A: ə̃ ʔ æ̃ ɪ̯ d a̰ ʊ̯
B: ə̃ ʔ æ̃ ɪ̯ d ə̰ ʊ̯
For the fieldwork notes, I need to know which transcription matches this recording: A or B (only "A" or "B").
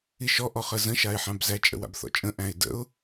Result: B